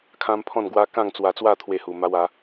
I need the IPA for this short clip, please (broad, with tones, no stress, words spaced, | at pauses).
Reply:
kʰã˦mpʰɔ̃˥˧nɡwa˦ kã˥˧ŋt͡swa˧t͡swa˥˧ t̪ʰwe˥˧hu˧ma˦w a˨˦